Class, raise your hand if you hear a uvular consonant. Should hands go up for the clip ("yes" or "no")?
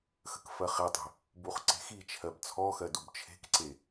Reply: yes